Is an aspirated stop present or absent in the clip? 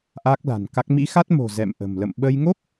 absent